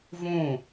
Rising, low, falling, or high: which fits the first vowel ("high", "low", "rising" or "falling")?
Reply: falling